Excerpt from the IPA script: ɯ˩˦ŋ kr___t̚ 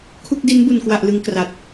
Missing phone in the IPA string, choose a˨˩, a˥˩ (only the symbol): a˨˩